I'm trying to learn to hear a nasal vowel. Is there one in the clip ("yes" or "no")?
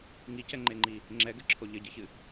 no